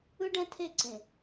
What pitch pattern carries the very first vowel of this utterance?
high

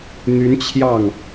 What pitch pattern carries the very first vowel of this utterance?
rising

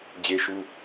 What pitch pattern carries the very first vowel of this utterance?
high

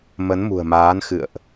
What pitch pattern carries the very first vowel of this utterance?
rising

